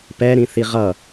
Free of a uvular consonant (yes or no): no